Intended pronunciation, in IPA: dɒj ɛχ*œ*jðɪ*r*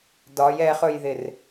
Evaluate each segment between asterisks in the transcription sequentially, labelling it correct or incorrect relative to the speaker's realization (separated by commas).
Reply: incorrect, correct